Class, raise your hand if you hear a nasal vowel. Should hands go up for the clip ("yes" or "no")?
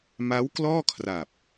no